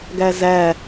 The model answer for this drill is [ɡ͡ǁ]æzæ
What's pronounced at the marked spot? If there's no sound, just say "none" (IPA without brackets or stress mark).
ɡ